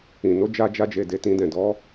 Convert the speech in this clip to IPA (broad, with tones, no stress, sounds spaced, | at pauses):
ĩ˨ n o˨˦ d͡ʒ a˧ d͡ʒ a˧ d͡ʒ e˨ d e˧ t ĩ˦ d ɛ̃˦˨ d ɔ˨˦